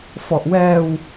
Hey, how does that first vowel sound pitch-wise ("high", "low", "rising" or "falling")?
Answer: low